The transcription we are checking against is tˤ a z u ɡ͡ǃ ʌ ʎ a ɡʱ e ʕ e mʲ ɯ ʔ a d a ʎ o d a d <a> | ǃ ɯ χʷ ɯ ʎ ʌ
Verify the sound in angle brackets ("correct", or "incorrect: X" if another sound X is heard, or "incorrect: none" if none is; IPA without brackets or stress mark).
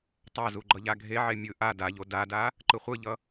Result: correct